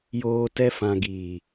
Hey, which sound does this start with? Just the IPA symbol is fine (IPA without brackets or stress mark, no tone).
j